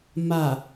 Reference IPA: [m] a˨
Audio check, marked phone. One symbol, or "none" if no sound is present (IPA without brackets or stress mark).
m